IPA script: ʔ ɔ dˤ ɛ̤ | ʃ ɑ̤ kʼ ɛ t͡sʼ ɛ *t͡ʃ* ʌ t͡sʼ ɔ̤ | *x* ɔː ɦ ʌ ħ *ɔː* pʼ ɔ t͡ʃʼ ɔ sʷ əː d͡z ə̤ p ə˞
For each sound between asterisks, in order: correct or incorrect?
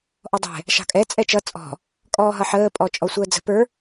correct, incorrect: kʼ, incorrect: əː

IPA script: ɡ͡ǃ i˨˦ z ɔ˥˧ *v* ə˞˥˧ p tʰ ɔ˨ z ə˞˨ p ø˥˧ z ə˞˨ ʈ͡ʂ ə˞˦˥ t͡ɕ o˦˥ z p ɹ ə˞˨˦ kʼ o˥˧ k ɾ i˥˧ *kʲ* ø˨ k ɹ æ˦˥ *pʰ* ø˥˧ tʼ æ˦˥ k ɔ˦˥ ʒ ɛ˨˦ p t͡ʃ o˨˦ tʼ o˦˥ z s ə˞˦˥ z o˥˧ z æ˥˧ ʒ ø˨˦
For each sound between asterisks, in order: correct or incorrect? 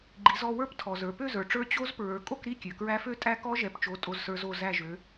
incorrect: w, correct, incorrect: f

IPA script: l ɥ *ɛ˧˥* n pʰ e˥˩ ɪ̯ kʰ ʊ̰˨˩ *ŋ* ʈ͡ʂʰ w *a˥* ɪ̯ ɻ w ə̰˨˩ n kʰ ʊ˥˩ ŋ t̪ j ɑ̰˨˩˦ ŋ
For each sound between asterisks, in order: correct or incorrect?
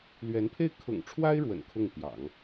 correct, correct, correct

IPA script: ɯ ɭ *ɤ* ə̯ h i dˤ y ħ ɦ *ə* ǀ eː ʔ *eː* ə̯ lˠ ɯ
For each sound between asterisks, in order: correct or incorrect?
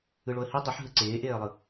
incorrect: o, incorrect: ɯ, correct

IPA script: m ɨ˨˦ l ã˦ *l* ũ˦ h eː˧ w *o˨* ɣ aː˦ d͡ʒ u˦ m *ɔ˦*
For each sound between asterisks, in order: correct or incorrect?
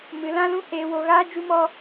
correct, incorrect: o˧, correct

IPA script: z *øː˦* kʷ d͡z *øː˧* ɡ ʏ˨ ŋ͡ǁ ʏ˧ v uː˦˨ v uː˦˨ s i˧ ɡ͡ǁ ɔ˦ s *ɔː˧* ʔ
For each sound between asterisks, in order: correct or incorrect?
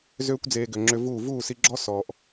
correct, incorrect: eː˧, correct

